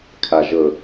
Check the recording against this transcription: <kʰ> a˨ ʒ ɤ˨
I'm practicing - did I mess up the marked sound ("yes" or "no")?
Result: no